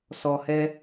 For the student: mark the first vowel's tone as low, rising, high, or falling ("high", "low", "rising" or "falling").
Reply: low